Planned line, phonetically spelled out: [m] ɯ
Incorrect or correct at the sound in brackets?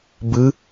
incorrect: b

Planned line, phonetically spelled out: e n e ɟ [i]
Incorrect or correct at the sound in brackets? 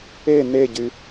incorrect: y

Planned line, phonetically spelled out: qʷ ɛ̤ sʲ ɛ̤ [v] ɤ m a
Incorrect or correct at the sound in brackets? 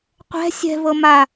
correct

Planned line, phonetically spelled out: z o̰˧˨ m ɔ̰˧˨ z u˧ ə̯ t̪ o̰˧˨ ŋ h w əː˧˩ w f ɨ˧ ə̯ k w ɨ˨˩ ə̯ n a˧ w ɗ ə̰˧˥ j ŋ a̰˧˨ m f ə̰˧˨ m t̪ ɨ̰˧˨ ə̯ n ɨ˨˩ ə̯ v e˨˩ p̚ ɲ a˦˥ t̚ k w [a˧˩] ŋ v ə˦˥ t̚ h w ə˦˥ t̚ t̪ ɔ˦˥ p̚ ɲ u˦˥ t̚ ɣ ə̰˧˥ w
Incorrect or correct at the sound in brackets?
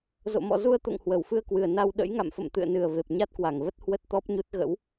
correct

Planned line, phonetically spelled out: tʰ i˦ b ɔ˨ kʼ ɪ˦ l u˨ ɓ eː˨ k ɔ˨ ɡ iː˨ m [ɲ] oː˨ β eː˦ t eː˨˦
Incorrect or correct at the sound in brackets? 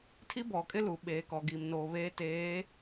incorrect: n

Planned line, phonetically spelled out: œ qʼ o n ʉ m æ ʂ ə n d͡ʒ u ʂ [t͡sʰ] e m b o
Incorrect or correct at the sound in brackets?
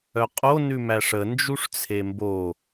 correct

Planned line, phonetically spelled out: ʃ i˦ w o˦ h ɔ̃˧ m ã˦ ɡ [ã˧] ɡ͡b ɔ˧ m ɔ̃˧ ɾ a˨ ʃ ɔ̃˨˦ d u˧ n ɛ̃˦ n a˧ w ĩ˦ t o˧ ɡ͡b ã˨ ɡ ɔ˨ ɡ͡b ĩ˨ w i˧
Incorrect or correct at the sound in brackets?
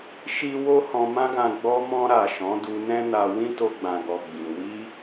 correct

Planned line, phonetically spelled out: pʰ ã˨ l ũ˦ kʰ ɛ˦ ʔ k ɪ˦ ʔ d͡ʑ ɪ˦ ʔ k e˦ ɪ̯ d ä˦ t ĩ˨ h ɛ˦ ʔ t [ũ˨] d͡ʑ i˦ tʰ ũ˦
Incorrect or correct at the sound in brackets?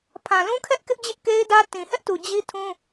incorrect: u˨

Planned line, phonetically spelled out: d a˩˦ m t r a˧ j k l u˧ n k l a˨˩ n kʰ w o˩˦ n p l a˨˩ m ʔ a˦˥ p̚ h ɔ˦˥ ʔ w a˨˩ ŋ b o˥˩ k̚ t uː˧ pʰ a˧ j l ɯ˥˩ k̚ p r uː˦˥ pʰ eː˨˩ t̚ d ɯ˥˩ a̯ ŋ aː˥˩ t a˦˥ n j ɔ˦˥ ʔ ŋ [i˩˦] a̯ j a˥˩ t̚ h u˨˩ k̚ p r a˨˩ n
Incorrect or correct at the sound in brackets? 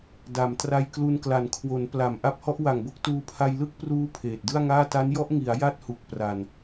correct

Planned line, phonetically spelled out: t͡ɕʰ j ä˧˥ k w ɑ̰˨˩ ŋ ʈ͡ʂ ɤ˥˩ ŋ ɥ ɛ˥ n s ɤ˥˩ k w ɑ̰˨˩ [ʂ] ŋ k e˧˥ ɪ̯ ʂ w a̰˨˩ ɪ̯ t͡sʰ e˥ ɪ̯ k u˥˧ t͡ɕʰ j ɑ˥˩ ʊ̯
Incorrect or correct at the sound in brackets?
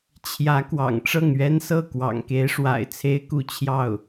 incorrect: none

